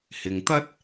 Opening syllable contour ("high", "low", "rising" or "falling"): low